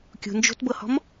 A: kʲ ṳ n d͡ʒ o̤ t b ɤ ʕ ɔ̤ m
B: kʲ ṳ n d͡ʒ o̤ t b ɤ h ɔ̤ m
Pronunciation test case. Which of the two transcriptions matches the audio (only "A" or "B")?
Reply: B